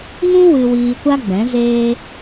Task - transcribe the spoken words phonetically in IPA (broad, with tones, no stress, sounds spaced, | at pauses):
ŋ ũ˦ w ɨ˧ w iː˧ kʷ a˦ ɡ͡b ɛ̃˨˦ z eː˦